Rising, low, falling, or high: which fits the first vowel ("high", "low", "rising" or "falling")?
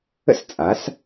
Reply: high